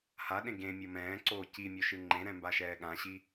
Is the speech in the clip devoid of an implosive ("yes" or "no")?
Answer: no